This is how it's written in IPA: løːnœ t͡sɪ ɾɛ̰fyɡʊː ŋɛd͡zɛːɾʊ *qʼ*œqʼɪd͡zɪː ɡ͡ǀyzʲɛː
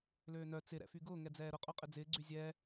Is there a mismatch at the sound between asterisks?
no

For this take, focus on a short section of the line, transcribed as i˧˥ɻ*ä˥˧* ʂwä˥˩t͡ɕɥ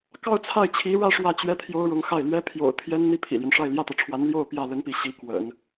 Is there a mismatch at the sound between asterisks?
no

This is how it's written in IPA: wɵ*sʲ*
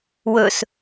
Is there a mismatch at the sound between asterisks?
yes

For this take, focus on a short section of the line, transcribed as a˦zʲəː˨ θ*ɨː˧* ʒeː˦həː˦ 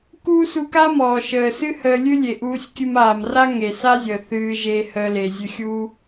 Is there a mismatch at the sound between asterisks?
no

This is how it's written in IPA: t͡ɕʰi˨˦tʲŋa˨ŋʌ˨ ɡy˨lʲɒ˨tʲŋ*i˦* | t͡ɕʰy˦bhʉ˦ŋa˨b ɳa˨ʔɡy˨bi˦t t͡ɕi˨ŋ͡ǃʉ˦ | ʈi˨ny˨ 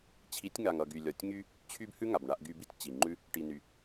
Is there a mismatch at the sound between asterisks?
yes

